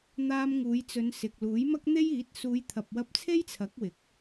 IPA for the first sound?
n̪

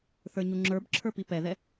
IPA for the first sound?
θ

